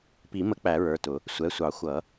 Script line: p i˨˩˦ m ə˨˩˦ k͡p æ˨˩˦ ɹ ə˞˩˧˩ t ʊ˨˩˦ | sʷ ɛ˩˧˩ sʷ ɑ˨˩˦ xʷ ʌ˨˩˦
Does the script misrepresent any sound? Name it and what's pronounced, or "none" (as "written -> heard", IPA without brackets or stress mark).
none